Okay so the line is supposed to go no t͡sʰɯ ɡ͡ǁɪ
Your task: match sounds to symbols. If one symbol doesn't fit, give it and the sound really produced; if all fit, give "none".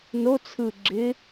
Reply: none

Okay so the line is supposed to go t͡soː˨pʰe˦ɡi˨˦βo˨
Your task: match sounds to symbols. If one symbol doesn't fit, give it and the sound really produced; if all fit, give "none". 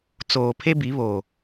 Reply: ɡ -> b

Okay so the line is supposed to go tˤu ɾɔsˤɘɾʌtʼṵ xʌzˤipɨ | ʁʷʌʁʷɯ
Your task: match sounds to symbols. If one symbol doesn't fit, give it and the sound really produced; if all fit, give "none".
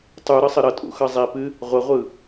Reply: ɔ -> ʌ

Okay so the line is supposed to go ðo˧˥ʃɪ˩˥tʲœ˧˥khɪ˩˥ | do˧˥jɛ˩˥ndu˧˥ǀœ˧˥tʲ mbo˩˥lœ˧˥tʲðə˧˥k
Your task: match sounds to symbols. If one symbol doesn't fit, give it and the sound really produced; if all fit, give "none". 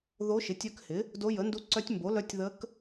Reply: ɛ˩˥ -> ə˩˥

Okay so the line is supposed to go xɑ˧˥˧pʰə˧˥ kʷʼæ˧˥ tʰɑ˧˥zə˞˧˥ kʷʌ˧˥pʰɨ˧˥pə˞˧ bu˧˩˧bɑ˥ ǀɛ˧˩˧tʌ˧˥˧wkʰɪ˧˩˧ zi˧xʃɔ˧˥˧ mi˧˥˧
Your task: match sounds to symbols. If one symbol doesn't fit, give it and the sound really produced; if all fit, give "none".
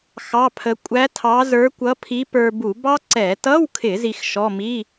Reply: ɨ˧˥ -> i˧˥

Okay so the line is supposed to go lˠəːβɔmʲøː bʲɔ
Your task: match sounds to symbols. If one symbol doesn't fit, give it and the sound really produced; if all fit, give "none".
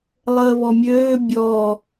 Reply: none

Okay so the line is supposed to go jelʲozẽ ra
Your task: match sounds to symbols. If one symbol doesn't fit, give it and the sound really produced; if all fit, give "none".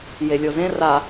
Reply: none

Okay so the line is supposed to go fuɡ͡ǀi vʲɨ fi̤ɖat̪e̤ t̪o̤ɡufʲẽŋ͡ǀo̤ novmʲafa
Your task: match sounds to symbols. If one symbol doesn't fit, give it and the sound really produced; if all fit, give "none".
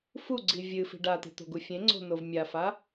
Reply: none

